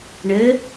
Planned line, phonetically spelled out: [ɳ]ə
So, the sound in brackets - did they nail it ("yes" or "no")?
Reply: yes